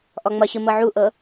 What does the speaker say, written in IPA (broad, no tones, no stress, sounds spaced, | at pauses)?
ʔ ɔ ŋ͡m ʌ ɕ ɯ m ɤ ʕ u ʔ ɤ